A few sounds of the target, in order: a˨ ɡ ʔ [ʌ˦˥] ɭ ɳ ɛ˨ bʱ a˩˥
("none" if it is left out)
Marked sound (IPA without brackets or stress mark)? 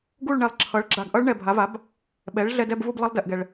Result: ʌ˦˥